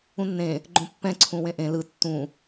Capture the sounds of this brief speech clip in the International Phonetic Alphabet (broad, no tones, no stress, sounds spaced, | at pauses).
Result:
ũ nː ẽ | ɡ͡ǃ õ pː ɛ̃ ǀʰ ũ w ẽ ʔ ẽ l ɯ tː ũ